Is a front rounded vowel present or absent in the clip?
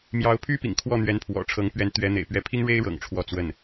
present